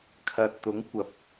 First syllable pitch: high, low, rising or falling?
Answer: low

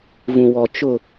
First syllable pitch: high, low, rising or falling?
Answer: low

